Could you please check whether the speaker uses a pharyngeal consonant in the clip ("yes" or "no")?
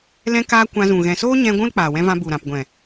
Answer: no